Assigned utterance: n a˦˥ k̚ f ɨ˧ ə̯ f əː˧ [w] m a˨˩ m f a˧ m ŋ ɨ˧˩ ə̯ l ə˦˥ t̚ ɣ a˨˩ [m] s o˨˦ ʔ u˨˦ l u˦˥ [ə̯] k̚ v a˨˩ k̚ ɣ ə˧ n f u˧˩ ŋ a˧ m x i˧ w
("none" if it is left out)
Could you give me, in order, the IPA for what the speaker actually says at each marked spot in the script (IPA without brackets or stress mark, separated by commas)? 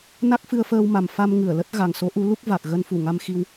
w, ŋ, none